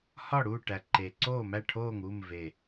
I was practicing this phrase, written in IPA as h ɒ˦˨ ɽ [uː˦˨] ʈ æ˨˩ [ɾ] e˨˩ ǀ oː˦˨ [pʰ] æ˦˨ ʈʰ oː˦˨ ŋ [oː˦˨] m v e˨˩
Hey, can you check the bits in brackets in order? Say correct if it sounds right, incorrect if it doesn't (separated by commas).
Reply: correct, incorrect, incorrect, incorrect